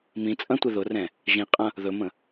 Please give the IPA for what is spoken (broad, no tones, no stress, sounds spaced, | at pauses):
m ĩ t͡sʼ ɐ̃ tʷ e ð ʊ r ɛ̃ | ʒ ĩ qʼ ɐ̃ | ð ɵ m ə̃